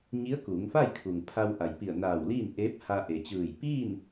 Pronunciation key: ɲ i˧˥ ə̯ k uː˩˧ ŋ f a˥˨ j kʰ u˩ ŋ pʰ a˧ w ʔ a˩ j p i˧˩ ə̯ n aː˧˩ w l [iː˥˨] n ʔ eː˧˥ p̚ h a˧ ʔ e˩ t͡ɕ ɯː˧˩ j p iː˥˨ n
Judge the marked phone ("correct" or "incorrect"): correct